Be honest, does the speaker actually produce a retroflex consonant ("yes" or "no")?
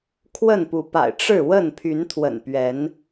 yes